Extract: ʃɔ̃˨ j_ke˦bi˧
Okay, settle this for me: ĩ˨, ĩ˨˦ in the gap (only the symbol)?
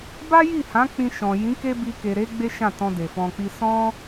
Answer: ĩ˨˦